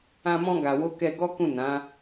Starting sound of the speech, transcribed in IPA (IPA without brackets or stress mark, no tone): ã